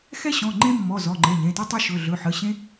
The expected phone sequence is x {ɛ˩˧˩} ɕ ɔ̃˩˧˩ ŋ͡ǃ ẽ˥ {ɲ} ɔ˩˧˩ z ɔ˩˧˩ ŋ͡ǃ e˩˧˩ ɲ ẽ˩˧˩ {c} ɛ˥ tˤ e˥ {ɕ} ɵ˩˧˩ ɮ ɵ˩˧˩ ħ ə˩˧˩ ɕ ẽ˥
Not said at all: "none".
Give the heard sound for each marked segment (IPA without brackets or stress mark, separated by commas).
ɛ˥, mː, t, ʃ